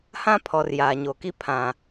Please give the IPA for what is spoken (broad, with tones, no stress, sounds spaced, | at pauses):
h ã˦ pʰ ɔ˨ r j aː˨ ɲ o˨ k i˦ pʰ ã˨